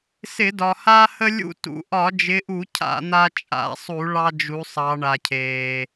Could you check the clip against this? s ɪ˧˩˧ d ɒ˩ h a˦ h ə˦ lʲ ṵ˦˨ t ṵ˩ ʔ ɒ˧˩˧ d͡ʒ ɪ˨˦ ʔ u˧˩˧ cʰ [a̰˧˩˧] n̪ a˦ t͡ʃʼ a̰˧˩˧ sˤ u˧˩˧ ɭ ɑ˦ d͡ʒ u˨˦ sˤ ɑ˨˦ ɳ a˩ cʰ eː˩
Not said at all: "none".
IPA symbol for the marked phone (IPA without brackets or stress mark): a̰˧˩˧